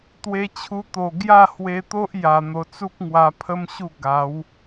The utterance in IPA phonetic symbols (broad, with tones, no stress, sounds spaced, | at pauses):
t̪ w e˧ t͡ɕʰ u˧ t̪ o˨˩ ɡ j a˥˧ h w e˧ t̪ o˦ ʔ j a˨˩ n̪ o˨˩ t͡s u˦ k̚ ŋ w a˧ pʰ ə˦ m ɕ u˥˧ ɡ a˨˦ w